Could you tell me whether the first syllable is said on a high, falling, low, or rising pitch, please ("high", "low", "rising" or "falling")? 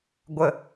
low